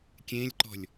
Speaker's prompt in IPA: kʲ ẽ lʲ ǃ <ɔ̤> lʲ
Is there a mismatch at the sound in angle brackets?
no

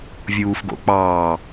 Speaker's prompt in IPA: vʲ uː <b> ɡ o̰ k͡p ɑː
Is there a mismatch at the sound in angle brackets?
yes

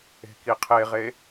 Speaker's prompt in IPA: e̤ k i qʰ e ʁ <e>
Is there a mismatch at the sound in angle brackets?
no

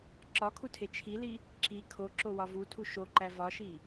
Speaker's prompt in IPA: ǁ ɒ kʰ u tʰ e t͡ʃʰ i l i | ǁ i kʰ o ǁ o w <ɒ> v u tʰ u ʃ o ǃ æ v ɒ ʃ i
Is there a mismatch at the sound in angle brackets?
no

